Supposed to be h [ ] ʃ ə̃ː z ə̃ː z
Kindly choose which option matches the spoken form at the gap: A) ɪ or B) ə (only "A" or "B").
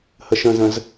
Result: B